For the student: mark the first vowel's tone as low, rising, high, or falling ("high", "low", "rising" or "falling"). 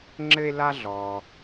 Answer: high